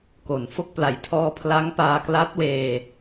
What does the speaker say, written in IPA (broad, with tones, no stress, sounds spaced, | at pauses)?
k o˨˩ n f o˥˩ k̚ p l a˨˩ j tʰ ɔː˧ pʰ l a˦˥ ŋ p aː˧ k l a˦˥ t̚ w eː˧